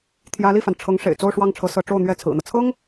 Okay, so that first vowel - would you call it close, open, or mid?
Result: open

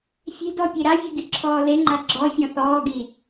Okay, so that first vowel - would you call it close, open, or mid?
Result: mid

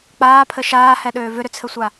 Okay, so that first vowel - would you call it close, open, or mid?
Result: open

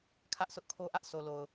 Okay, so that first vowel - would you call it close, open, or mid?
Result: open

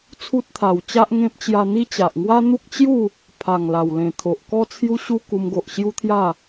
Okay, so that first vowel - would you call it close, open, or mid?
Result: close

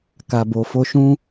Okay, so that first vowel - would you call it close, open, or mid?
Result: open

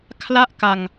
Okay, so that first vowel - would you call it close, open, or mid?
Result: open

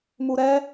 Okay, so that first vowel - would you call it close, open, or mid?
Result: close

